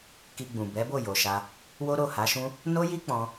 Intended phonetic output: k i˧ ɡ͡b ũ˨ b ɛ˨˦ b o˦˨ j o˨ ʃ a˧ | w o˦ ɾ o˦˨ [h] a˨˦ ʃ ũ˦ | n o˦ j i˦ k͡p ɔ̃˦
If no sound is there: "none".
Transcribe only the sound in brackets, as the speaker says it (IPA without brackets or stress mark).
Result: h